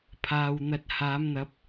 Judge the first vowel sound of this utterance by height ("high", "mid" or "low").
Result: low